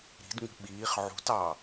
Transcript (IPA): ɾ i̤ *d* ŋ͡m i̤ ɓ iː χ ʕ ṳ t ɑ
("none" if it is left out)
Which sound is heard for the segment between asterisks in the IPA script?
d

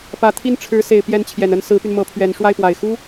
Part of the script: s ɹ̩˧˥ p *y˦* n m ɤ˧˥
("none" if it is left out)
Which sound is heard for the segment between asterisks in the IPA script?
y˧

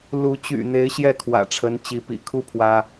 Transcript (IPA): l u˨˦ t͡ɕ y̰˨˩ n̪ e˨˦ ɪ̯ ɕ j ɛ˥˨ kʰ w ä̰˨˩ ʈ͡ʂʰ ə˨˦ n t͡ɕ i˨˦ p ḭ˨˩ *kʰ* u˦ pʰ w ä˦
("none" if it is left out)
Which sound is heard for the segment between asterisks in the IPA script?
kʰ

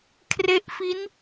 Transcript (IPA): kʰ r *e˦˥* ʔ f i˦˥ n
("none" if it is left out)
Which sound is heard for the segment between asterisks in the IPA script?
e˦˥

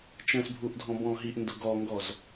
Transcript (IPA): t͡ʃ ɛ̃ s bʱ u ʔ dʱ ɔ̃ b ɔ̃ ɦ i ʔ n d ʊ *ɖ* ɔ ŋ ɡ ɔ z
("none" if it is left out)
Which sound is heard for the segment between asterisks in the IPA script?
ɡ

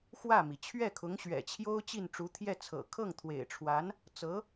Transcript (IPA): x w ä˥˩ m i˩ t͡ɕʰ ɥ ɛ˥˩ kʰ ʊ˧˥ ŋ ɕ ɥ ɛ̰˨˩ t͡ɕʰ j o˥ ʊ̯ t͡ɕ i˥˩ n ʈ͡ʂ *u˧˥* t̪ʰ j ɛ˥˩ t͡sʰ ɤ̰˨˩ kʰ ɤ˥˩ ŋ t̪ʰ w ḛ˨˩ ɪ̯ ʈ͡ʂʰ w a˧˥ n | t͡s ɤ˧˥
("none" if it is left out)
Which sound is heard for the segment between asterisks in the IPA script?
u˧˥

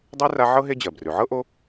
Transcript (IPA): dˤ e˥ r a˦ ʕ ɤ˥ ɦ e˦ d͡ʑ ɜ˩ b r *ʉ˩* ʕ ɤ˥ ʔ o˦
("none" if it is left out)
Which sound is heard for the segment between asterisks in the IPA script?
ʉ˩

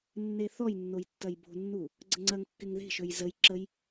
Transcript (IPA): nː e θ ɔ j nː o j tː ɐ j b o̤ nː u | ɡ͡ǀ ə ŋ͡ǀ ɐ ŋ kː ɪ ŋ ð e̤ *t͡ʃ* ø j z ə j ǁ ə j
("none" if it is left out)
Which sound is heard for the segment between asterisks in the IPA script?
ʃ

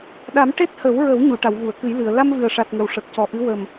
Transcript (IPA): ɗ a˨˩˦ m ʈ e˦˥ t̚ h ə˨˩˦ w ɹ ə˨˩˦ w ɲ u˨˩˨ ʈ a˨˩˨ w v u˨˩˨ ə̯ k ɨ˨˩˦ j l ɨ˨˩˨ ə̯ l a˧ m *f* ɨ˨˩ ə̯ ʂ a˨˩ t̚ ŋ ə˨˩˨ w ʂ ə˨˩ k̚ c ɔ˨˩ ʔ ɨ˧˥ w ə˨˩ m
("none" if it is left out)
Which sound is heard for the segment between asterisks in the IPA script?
v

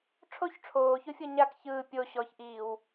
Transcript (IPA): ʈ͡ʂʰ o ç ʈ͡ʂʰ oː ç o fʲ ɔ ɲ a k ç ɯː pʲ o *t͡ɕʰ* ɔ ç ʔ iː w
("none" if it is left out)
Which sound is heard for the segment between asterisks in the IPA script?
ɕ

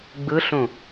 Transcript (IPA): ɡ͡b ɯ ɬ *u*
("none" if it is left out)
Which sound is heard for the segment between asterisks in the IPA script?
ũ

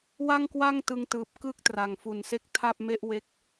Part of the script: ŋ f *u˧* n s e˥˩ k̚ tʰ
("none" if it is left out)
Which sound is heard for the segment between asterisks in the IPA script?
u˨˩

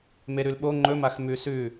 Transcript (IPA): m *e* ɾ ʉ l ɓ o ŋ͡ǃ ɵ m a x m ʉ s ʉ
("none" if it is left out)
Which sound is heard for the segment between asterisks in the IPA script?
e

